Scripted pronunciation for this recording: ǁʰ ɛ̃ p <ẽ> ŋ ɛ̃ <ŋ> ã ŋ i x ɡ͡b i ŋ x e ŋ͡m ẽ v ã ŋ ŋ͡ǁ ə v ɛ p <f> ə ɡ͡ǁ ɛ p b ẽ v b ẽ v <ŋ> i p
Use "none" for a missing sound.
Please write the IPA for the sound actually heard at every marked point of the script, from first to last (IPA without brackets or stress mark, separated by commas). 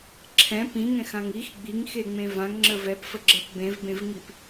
ĩ, x, f, ŋ